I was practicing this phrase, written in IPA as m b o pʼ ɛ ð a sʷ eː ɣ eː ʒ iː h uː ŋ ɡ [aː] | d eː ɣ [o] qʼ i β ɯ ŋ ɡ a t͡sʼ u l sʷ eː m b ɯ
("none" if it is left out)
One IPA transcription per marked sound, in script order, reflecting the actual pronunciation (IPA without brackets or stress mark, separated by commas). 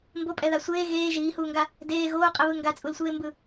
a, oː